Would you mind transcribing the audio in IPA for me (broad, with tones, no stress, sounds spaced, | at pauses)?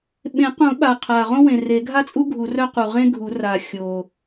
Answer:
ɓ ẽ˨˩˦ q ũ˨˩˦ ɓ a˨˩ qʰ a˨˩ ʁ õ˥ w ẽ˨˩ r e˨˩˦ ɡʱ a˥ t͡sʼ u˥ ɡʱ u˨˩˦ r œ˥ q u˨˩ ʁ ẽ˥ ɡʱ u˨˩˦ r a˨˩ xʲ o˨˩